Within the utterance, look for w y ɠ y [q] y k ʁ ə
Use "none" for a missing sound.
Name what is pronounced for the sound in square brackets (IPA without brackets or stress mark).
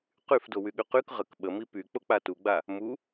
q